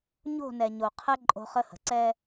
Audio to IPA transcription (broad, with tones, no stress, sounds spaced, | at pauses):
ɲ o̤˦˨ n ɛ˨ ɲ o˨ qʰ ɛ˦ ǃʼ o̤˦ χ ə˦ h ə̤˨ ǀ ɛ˦